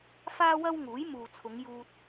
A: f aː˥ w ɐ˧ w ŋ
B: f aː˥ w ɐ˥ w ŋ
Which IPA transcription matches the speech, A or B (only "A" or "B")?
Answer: B